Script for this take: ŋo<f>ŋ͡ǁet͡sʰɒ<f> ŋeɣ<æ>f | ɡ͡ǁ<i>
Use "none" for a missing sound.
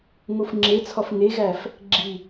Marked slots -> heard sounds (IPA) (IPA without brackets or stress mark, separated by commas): f, f, æ, i